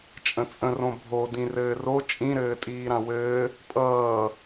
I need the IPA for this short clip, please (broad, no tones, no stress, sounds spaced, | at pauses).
t͡ʃʼ ə̃ t͡sʼ ə̃ r õ bʱ o d ĩ r ɘː r o t͡ʃʼ ĩ ɾ ɘː tʼ iː ɾ ã w ɘː | pʼ ʌː